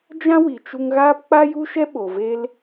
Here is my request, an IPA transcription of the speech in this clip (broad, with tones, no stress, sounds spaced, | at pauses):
d͡ʒ ã˦ w i˨ t͡ʃ u˧ ŋ ɣ aː˦ p k͡p a˦ j u˦ ʃ ɛ˦ ɓ o˨ v e˦ l